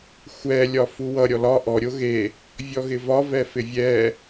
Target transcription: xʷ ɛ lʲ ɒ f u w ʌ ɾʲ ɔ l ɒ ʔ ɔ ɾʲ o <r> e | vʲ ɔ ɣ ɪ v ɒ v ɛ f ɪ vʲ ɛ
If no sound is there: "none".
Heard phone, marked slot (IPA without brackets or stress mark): ɣ